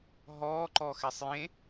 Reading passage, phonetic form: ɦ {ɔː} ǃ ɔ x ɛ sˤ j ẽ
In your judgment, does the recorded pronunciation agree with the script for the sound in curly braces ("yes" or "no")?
yes